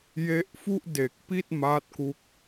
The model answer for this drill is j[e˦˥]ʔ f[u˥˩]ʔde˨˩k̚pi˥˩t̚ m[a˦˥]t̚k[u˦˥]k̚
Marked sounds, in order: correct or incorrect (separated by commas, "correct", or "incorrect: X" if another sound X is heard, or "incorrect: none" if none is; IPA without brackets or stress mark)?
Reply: correct, correct, correct, correct